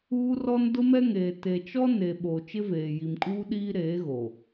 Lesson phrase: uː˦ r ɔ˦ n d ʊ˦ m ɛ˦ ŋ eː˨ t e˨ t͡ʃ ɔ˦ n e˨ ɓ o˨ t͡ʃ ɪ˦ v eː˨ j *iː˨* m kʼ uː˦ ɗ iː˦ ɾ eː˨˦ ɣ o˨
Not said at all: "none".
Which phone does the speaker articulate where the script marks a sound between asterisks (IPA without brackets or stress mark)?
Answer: i˨